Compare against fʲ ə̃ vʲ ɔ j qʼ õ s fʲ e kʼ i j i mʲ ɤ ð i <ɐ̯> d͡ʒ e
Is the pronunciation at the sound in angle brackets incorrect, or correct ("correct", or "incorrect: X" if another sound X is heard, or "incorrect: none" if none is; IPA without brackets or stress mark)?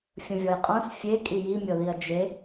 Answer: correct